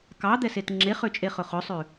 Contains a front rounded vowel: yes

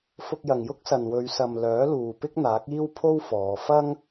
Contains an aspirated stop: yes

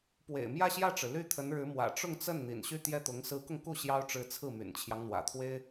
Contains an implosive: no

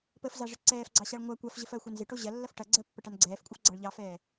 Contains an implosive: no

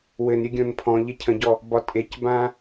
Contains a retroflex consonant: no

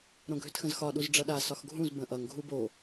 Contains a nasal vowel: yes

